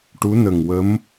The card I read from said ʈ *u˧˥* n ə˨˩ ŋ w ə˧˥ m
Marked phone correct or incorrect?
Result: correct